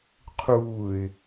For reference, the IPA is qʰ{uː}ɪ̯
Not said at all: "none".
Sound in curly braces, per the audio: uː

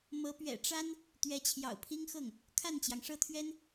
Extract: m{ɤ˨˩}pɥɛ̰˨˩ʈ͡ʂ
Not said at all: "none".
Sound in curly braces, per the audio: ɤ˧˥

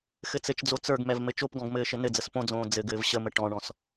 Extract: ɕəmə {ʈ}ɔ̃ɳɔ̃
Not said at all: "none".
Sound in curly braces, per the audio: ʈ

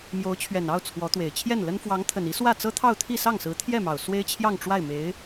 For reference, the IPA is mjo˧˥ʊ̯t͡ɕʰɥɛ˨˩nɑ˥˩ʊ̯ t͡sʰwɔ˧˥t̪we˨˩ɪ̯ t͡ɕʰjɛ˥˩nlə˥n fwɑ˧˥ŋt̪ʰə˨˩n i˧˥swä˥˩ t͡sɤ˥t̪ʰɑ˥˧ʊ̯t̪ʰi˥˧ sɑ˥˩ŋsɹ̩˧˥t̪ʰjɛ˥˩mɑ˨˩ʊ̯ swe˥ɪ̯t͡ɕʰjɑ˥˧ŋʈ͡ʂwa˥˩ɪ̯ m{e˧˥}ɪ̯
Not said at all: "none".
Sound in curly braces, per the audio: e˧˥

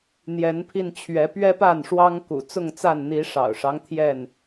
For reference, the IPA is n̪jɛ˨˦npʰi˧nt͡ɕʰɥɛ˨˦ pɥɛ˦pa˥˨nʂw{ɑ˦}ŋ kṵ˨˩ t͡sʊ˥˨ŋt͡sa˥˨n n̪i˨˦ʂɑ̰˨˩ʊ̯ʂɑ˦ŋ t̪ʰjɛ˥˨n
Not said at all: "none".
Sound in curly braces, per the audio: ɑ˦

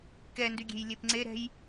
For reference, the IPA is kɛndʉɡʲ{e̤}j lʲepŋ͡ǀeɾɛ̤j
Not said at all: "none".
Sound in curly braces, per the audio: e̤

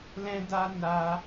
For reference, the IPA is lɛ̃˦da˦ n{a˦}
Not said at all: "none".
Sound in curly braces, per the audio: a˦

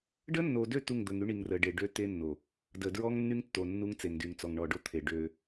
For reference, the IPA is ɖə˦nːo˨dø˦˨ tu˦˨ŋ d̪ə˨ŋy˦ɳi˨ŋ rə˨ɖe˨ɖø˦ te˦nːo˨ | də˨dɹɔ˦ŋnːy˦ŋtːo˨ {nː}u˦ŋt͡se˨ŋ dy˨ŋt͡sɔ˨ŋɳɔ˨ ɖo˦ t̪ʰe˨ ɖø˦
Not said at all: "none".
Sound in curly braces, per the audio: nː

